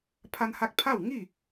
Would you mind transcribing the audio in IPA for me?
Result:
pʰa˧nha˧˥k̚pʰa˥˨w ŋi˥˨

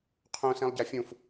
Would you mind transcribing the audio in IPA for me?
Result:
qʰũ sẽlˠɟafʲũf

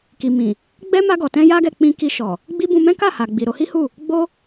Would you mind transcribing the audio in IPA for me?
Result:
ki˨mĩ˨ | ɡ͡bɛ˦ ma˧ɡɔ˨tɛ̃˧ ja˦ɡɛ˧ k͡pĩ˧ki˧ʃɔ˨ | ɡ͡bi˦ bũ˧mɛ̃˦ka˦˨ ha˨ɡ͡bi˨ ɾo˧hi˦hu˦˨ | ɡ͡bo˦

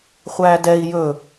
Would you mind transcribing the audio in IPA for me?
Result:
χʷæːdɛi̯ jɵ

